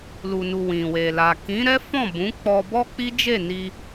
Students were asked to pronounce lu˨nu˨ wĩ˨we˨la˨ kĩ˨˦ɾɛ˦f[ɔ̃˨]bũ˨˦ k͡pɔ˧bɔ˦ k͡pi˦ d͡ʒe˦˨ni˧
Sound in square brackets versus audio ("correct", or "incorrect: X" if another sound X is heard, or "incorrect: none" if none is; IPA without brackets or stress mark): incorrect: ɔ̃˦˨